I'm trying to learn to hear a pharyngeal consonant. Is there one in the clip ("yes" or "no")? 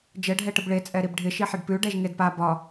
yes